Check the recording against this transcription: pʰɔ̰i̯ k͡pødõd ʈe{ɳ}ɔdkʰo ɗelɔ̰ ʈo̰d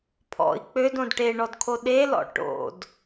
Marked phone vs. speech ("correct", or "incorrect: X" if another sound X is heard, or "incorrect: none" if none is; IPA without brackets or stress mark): correct